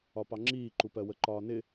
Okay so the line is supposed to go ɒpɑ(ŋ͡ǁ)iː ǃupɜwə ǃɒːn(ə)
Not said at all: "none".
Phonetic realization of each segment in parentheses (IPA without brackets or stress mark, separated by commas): ŋ͡ǁ, ɪ